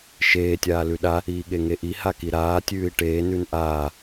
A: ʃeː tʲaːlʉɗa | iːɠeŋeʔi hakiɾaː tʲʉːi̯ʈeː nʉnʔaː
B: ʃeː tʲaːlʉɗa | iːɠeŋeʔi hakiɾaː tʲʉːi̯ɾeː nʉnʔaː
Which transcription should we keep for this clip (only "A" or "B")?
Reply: A